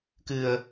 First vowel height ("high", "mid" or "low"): high